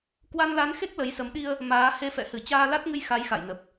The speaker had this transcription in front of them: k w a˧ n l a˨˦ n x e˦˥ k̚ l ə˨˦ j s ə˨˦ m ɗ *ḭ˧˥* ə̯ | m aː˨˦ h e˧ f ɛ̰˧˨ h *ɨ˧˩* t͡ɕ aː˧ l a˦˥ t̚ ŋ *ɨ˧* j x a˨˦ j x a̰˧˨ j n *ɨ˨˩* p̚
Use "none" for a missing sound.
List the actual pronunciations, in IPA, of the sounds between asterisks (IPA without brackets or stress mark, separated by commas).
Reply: i˧, ɨ˧˩, ɨ˧, ə˨˩